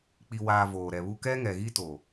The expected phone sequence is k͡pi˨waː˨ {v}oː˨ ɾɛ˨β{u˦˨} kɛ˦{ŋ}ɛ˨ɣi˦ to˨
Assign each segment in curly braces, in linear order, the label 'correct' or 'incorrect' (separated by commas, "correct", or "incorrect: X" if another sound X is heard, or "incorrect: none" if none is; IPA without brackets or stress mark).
correct, incorrect: u˦, correct